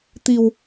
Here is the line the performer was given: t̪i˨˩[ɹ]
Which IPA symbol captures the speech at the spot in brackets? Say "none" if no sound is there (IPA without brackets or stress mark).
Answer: w